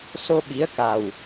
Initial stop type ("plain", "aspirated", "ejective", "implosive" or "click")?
implosive